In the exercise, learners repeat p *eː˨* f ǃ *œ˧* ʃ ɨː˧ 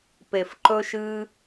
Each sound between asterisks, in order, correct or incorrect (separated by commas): incorrect, incorrect